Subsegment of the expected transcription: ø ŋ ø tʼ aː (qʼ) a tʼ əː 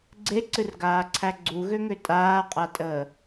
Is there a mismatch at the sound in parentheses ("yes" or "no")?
no